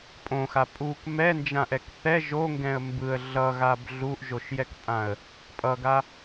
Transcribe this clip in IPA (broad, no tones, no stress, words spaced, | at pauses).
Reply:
pʼõxa pʼuk mɛnd͡ʒãʔɛk θɛ ʒoŋɡɛ̃ə̯ mbɯə̯ ɮʌɣab ɮuʔʒoʃjɛkpʼãə̯ | pʼʌɡa